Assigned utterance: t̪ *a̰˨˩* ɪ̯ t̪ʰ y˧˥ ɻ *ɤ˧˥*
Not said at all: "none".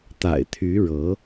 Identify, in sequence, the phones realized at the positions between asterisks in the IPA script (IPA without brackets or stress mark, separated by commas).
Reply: a̰˨˩, ɤ˧˥